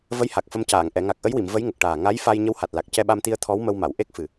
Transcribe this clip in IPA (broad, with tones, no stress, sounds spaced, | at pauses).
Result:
v ə˧˥ j h a˨˩ k̚ f ə˧ m c aː˨˩˨ ŋ ʔ ɛ˨˩˨ ŋ a˨˩ k̚ ʔ ə˧˥ j w i˨˩˨ m v ə˧˥ j ŋ ə˨˩ k̚ ʈ aː˨˩ ŋ a˧˥ j f a˧ j ɲ ə˧˥ w h a˨˩ t̚ l a˨˩ k̚ c ɛ˧ ɓ a˧ m t̪ i˧ ə̯ t̪ʰ ɔ˧˥ w m ə˧ w m a˨˩˨ w ʔ e˦˥ k̚ f ɨ˨˩